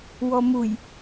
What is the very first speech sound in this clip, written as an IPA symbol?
w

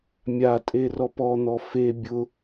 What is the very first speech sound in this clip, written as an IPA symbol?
mʲ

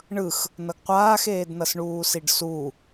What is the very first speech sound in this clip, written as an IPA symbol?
ɳ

